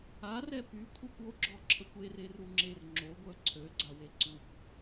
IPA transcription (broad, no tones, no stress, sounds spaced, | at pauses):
a r ɛ p y kʷʰ i kʷ o ɡ͡ǁ ɔ ǁʰ ə kʷ e r e r u ŋ͡ǁ e r ŋ͡ǁ o ɡʷ œ ǀʰ ø ɡ͡ǀ a w e ǀ u kʷ